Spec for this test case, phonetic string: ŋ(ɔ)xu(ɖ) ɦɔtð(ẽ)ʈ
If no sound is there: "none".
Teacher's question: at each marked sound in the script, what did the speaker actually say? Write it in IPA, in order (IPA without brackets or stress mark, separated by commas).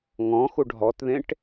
ɔ̃, ɖ, ẽ